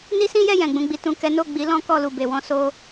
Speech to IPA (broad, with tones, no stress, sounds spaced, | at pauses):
n i˦ s ĩ˦ j ɛ˦˨ j ɛ̃˨ ɡ͡b ũ˧ ɡ͡b i˧ t ũ˨ k ɛ˨˦ n o˦˨ ɡ͡b i˨˦ l ɔ̃˦ k ɔ˦˨ l u˨ b e˨ w ɔ̃˧ s o˦